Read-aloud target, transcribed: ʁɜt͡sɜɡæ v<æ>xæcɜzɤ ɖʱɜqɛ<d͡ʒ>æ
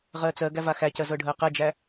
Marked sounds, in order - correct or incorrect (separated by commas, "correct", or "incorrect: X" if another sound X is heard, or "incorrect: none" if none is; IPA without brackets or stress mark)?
incorrect: a, correct